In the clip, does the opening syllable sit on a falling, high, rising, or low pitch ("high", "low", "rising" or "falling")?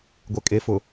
low